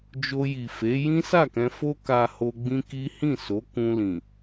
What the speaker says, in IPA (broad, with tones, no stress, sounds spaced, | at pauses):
d͡ʒ o˧ j i˨ f e˨˦ j ĩ˦ s a˦˨ k ɛ̃˧ f o˦ k a˧ h o˧ ɡ͡b ĩ˦ k i˦ h ĩ˦˨ s o˨˦ k ũ˧ l ĩ˨